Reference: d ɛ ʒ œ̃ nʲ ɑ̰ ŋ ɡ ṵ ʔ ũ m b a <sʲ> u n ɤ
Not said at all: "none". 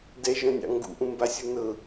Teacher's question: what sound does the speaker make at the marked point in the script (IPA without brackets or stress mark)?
sʲ